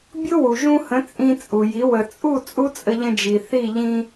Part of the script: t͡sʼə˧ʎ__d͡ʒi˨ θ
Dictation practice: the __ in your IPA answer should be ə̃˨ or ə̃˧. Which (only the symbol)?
ə̃˧